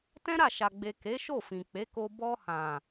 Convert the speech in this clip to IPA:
tɛ̃˦ɾa˦˨ʃa˨ɡ͡be˨ ke˨˦ʃo˦˨fĩ˨ k͡pe˨˦ko˧ bɔ˧hã˨

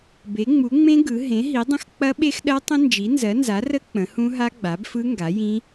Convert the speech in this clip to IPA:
be˩˥ŋ͡mu˩˥ŋ͡mẽ˦˥ ɡɯ˩˥ ɦẽ˩˥ɦi˩˥dˤə̃˦˥x k͡pɐ˦˥ɓe˦˥xɗɜ˦˥tˤə̃˦˥ nd͡ʒi˩˥nzɜ˩˥nza˩˥rə˦˥ k͡pə̃˩˥hũ˦˥ ɦa˦˥ɡ͡ba˩˥bfɯ˦˥ ŋɡa˩˥jĩ˦˥

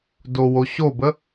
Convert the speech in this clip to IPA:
dowoɕobə

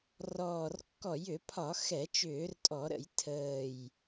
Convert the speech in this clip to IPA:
rɔː˨˩rkːɔ˧˩˧jʏ˧˩˧pʰɒ˧˩˧ xɛ˧˩˧t͡ʃʏː˧˩˧rtʼɔ˧˩˧ɾə̰˧˩˧j tʰəː˨˩j

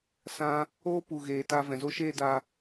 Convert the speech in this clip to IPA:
sã˧ | oː˦ pu˧ɣeː˧ta˦ vɛ̃˨zo˦ʃeː˦da˧

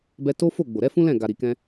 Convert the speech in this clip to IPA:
bɛ˧to˦ fo˦˨ ɡ͡bo˨ɾɛ˨˦fũ˦lɛ̃˦˨ ɡa˨ɾi˨kɛ̃˧

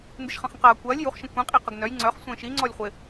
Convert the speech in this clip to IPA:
ndɪʃχɐ̃χə̃qɐː kʷɐːlʲ juχʃə̃ kʷĩqʼi qəɡnœj ŋ͡ǀœχsʷə̃ː ʃi ŋ͡ǀɔlʲχʷɪ

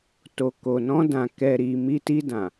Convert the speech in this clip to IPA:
to˨ko˨nɔ̃˧dã˨ kɛ˨ɾi˨ mi˧ti˧dã˨

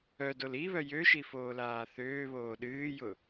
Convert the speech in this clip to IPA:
œdol iβœ jøʃi foːlaːθøːβoː ɗɨːjʊ

